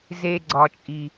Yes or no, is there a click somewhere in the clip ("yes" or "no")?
yes